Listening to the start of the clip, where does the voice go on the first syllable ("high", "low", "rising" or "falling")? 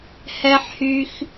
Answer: high